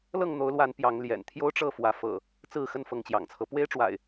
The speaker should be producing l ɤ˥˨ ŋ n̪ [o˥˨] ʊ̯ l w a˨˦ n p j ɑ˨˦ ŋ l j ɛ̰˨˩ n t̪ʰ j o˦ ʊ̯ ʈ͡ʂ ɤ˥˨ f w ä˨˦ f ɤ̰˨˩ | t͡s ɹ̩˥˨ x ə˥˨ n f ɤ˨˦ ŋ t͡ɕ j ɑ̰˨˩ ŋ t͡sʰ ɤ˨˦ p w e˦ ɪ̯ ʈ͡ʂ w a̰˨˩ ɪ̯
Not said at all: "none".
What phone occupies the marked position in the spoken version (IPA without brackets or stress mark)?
o˨˦